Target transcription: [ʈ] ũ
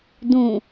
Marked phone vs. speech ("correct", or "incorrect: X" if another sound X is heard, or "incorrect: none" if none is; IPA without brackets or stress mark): incorrect: d